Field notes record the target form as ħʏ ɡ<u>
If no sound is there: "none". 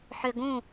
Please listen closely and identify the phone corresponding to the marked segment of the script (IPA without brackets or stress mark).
ũ